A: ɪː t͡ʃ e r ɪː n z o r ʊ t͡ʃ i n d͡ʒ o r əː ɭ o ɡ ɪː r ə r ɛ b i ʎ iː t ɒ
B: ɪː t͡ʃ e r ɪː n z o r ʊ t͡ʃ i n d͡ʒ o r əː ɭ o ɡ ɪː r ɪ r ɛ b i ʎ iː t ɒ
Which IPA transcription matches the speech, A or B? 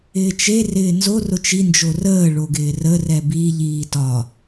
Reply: A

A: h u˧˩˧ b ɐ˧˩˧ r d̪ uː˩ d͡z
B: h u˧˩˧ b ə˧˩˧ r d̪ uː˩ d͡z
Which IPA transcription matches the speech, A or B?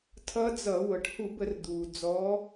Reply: B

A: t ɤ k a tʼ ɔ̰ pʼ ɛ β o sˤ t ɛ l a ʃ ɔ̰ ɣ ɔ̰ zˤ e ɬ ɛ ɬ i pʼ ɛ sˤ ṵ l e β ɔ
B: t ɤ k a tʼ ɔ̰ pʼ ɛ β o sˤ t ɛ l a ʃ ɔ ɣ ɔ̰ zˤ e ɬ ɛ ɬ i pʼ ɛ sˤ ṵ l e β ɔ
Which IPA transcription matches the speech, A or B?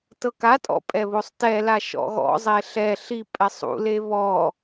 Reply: A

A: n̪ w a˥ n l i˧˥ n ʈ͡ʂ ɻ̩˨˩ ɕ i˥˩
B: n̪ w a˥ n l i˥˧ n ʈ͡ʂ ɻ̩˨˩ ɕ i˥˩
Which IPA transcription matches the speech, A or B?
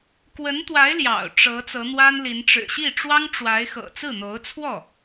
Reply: A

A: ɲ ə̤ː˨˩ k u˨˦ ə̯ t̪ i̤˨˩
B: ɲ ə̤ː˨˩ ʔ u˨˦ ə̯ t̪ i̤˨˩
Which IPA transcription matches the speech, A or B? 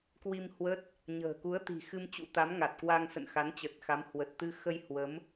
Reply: A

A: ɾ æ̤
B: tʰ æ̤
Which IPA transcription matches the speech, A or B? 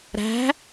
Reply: A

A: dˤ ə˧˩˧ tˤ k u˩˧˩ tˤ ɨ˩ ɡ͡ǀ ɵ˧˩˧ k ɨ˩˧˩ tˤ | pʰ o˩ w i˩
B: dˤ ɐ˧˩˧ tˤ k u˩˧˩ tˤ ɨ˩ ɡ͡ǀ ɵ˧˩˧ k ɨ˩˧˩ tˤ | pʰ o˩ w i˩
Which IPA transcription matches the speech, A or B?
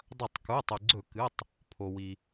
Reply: B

